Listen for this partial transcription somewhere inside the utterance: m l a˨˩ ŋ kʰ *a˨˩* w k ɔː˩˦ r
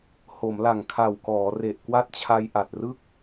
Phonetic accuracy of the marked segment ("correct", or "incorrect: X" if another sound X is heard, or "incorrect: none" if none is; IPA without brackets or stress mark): correct